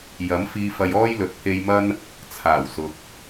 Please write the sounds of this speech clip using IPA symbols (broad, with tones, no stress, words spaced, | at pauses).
jɐ˨˥mfiː˧fɐ˧j ɔː˥jlɵ˨t̚pʰe˧jmɐ˥n | t͡sʰaː˨˩w sʊ˨k̚